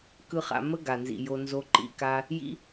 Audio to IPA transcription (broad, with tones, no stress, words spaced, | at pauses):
kɯ˦χa̰˧ mə˦ ɡa˨nzḭ˨jo˧ nzo˧ǃḭ˧ka˦ | jḭ˦